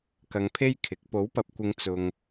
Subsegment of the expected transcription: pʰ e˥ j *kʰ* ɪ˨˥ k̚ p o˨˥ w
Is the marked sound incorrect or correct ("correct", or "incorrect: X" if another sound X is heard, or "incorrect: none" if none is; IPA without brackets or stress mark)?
correct